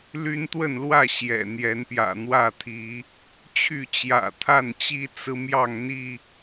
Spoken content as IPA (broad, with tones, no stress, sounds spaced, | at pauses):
l y˦ n t̪ w ə˥˨ n l w ä˥˨ ɕ j ɛ̰˨˩ n̪ j ɛ˨˦ n p j ä̰˨˩ n̪ w ä˥˨ t̪ʰ i˨˦ | t͡ɕʰ y˥˨ t͡ɕ j ä̰˨˩ t̪ʰ a˥˨ n t͡ɕ i˦ t͡s ɹ̩˦ m j ɑ˥˨ ŋ n̪ i˥˨